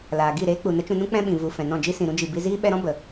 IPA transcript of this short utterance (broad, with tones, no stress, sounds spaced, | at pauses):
l aː˨ ɡ i˦˨ ɾ eː˦ k͡p u˨ n ə˦ t͡ʃ ũ˧ n ũ˦ k͡p ɛ̃˦ ɓ ĩ˨ v u˨ f ɛ̃˨ n ɔ̃˦˨ d͡ʒ i˦ s ĩ˨ ɾ ũ˦ d͡ʒ i˨ b i˧ z iː˦ ɓ ɛ˧ ɾ ɔ̃˦ b ə˨